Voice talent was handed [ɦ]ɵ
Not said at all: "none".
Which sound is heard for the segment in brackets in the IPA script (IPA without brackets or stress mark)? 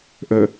ʔ